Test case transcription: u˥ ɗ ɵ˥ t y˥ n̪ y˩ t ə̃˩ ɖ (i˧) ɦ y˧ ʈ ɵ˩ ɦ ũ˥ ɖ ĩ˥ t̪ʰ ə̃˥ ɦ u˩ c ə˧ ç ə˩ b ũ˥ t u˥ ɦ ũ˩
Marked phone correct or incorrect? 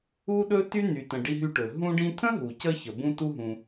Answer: correct